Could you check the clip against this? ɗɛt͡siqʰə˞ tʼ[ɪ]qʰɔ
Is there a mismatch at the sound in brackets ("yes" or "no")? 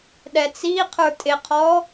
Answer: no